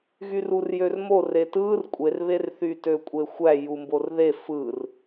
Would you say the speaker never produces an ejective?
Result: no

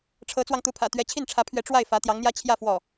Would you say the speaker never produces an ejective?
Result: yes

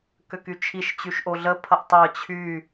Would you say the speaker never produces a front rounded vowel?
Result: no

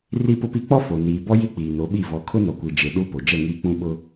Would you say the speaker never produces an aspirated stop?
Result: no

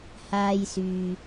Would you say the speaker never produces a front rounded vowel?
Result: no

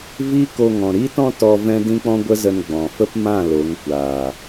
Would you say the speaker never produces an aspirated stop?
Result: yes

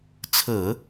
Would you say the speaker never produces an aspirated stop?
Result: no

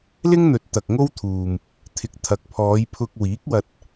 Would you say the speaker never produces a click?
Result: yes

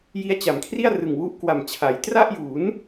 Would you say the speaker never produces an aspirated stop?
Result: no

